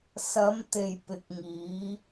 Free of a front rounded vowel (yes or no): yes